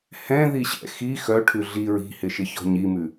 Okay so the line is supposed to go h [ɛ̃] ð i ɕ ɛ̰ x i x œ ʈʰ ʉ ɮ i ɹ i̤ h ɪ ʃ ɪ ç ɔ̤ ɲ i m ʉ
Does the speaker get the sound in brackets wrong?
no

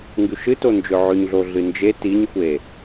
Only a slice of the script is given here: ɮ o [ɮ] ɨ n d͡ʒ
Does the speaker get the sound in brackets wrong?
no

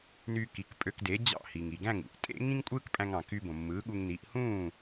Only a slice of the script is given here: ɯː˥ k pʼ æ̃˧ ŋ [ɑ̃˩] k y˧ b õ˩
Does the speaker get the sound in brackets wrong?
no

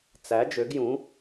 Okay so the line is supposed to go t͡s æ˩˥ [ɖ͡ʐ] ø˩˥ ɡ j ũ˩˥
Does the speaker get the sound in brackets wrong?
yes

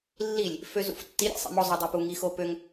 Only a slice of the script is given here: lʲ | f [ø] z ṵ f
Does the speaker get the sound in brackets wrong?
no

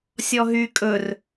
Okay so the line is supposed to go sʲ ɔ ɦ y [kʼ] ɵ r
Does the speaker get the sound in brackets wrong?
no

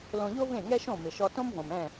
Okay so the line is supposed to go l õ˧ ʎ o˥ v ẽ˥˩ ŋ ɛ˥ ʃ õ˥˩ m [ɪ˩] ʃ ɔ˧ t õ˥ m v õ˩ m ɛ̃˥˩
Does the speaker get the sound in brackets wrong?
no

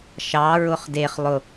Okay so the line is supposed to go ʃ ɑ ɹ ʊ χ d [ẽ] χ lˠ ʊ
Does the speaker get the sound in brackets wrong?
yes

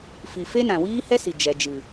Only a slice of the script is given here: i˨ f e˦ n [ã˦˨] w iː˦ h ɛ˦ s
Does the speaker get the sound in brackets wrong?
yes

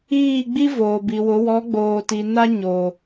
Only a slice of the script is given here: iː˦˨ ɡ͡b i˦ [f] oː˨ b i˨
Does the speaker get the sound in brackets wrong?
yes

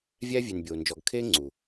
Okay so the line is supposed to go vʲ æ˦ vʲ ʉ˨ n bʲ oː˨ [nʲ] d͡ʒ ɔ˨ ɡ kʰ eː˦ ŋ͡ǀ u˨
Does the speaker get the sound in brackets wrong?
yes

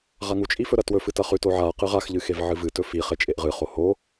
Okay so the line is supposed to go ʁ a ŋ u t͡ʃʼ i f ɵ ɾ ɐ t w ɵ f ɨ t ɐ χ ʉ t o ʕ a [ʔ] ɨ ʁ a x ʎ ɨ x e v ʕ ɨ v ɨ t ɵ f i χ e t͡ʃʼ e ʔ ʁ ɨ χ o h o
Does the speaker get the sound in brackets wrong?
yes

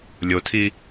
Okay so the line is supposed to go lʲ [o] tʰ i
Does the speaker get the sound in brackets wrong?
no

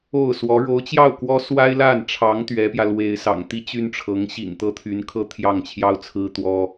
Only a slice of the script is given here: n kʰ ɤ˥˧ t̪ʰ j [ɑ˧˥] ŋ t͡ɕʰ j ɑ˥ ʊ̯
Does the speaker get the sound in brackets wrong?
yes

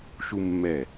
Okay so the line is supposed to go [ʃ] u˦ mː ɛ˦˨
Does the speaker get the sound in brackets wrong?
no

